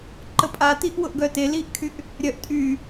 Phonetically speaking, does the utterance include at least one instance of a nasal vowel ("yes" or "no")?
no